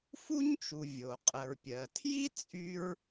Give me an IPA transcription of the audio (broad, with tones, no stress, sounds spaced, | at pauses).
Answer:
f u˥ ɲ t͡ʃ u˩ vʲ o˩ qʼ ə˩ ɹ pʲ ɜ˩ tʰ j i˥ t͡sʼ y˥ ɹ